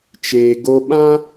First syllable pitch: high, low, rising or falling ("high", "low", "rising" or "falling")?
low